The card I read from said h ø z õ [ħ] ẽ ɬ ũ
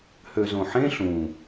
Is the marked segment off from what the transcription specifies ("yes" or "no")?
no